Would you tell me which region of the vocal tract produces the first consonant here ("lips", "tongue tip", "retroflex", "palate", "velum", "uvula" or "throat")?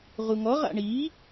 uvula